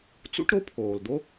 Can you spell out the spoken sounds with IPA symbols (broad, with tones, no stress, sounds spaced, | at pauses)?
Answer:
t͡s ṵ˥ ʈ ɾ o˥ pʰ oː˩ l d̪ o˥